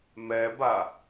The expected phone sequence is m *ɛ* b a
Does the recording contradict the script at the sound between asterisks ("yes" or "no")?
no